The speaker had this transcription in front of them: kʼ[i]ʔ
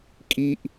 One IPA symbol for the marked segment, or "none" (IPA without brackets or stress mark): i